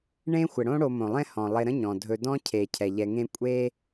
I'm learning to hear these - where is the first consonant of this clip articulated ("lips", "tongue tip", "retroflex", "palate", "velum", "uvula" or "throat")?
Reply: retroflex